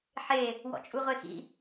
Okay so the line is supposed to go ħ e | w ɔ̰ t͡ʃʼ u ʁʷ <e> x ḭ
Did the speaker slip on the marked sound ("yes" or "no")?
no